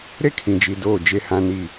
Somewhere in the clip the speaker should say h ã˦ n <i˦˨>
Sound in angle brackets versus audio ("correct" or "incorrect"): correct